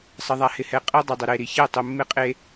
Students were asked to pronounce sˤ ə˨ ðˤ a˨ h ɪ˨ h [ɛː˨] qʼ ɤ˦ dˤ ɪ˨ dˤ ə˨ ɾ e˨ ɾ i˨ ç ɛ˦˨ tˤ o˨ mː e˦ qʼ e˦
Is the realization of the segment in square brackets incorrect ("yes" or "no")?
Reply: yes